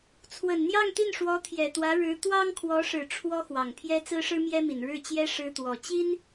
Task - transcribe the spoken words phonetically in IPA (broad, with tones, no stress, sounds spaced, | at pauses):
t͡sʰ w ə˨˩ n n̪ j ɑ˥˧ ŋ t̪ i˥˩ n ʂ w ɔ˧˥ t̪ʰ j ɛ˨˩ t̪ w ä˧˥ ɻ ɻ̩˧˥ t̪ w ɑ˥ ŋ kʰ w ɔ˧˥ ʂ ɻ̩˨˩ ʈ͡ʂʰ w ɔ˥ x w ɑ˨˩ ŋ pʰ j ɛ˥ t͡s ɹ̩˥ ʂ ɻ̩˥ m j ɛ˥ m i˨˩ n ɻ ɻ̩˥˩ t͡ɕ j ɛ˥ ʂ ɻ̩˥ t̪ w ɔ˨˩ t͡ɕ i˥ n